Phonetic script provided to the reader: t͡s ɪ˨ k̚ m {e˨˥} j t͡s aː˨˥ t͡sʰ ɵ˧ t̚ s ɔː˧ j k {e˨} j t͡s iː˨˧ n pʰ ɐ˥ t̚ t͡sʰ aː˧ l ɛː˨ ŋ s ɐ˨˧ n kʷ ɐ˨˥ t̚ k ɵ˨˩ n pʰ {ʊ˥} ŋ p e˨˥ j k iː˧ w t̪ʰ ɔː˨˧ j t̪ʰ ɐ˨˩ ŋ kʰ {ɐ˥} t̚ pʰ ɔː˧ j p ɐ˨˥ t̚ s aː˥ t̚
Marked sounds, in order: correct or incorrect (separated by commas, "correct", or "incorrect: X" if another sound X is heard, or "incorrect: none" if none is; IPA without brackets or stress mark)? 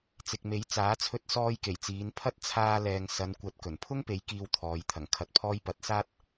correct, incorrect: e˨˩, correct, incorrect: ɐ˨